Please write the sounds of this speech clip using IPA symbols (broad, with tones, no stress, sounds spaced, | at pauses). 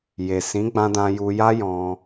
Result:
j e˨ s ĩ˨˦ ɡ͡b ã˧ d ã˧ j u˧ j a˦ j ɔ̃˧